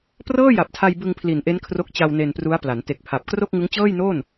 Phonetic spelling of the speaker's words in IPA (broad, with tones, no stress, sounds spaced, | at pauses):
p r ɤː˥˩ j a˨˩ p̚ tʰ a˧ j b ɯ˧ ŋ pʰ l i˨˩ n ʔ e˦˥ n kʰ r o˦˥ k̚ t͡ɕ a˧ w n e˧ n p r u˦˥ a̯ p l a˩˦ n t e˨˩ k̚ pʰ a˨˩ p̚ k r o˥˩ k̚ ŋ ɯ˦˥ ŋ t͡ɕ ɤː˥˩ j n oː˥˩ n